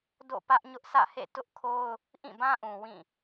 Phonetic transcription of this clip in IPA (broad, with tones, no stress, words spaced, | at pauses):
do̰˦˨ pä˦ʔɲʊ˦ʔsä̰˦˨hḛ˦˨ tʊ˦ʔkʰo˦ʊ̯ | ʔĩ˦˨bã˦ʔũ˨ wĩ˦˨